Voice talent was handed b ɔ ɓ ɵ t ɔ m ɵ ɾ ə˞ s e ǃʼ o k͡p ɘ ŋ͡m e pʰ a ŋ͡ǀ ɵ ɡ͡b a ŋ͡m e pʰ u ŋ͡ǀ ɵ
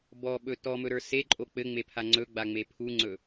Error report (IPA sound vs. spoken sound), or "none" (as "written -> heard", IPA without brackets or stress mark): none